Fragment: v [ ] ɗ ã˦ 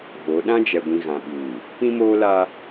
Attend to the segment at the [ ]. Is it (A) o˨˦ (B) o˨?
A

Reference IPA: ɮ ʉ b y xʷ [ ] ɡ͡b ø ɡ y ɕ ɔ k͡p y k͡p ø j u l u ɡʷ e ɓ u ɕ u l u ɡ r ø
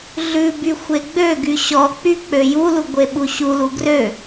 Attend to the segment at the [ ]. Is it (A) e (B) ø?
A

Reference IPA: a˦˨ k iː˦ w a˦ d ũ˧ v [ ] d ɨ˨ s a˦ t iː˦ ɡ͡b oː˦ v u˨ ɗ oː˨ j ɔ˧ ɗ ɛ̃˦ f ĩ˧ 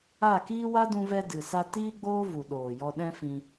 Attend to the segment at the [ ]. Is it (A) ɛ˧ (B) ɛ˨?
A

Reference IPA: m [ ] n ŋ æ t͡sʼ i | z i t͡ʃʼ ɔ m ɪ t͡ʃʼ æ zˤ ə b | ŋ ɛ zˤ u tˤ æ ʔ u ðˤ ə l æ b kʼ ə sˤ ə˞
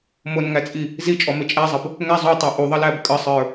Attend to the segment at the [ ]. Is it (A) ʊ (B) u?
A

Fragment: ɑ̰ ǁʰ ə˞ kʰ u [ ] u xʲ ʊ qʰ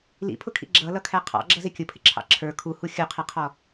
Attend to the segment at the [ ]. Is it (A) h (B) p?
A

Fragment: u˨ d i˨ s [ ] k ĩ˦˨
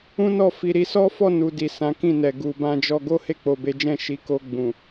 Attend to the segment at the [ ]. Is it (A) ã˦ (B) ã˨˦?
B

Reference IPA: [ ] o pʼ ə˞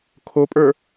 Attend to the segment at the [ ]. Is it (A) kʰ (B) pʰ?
A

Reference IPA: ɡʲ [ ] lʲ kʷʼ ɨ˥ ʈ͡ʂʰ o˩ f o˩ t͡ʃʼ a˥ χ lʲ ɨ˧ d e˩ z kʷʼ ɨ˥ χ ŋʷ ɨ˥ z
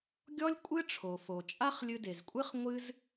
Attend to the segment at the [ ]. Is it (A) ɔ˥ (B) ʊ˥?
A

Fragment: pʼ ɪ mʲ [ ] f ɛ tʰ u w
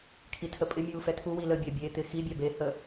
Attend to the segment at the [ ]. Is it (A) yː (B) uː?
B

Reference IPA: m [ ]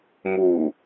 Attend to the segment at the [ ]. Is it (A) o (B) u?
B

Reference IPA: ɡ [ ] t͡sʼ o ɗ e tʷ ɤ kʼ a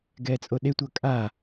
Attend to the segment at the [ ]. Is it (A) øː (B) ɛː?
B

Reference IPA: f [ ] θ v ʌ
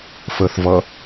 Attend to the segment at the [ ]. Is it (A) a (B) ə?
B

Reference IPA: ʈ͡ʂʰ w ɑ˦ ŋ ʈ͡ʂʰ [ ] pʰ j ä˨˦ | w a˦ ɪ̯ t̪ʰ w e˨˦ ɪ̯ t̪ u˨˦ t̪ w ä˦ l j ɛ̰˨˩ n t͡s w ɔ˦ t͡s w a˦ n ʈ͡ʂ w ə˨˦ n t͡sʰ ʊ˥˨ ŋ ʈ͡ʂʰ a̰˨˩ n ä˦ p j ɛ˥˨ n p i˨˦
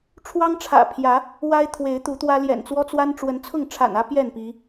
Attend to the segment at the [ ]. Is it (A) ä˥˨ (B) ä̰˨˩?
B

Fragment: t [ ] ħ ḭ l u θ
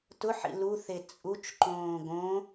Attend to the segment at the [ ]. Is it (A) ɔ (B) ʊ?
B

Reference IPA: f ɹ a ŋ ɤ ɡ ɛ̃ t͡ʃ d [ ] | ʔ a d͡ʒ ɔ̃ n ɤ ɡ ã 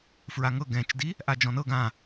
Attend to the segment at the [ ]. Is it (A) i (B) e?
A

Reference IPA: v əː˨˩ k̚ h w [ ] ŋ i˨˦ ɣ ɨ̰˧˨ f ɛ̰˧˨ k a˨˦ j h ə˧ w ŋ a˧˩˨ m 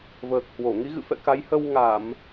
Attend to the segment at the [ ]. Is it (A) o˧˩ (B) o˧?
A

